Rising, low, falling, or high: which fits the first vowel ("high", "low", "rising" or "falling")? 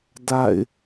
falling